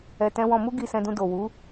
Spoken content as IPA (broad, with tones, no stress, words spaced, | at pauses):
ɛ˨tɛ̃˧ wɔ̃˧mu˦ ɡi˧sɛ̃˧dũ˧ do˨wu˨˦